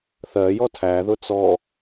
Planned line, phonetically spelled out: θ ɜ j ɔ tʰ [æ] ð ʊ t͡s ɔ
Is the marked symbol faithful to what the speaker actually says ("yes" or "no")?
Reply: yes